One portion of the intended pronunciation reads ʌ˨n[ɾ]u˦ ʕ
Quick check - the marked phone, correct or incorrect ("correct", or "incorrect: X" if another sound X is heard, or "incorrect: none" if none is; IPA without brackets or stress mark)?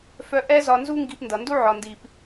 incorrect: d